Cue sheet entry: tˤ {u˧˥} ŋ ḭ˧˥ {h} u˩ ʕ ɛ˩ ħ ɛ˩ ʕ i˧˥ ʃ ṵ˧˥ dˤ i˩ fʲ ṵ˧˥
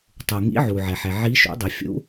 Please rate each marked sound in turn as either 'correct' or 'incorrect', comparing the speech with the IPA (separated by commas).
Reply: incorrect, incorrect